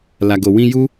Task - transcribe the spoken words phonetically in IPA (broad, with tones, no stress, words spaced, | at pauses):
la˨ɡo˨ wĩ˧ ju˦